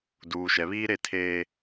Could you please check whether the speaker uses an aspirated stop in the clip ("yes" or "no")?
yes